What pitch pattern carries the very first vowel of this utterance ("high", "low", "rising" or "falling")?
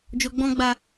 low